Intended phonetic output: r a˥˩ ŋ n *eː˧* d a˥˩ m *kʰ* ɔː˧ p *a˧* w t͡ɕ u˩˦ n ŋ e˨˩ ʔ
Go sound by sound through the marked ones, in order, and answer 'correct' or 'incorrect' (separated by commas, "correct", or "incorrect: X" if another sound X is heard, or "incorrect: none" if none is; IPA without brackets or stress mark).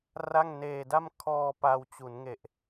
correct, correct, correct